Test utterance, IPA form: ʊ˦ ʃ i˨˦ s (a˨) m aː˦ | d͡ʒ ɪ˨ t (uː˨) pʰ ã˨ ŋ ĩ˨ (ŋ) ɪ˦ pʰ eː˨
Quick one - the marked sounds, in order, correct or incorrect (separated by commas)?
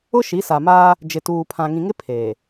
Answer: correct, correct, correct